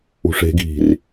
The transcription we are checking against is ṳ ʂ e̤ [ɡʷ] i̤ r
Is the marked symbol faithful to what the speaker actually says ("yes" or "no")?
no